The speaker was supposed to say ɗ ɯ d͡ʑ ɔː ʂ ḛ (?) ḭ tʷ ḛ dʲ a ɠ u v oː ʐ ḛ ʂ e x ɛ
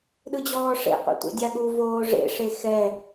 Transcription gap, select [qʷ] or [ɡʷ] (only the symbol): qʷ